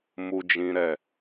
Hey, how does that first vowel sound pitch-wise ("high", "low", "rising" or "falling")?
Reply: high